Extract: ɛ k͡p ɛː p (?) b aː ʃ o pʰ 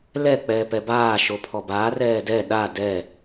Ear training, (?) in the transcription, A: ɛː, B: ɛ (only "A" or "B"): B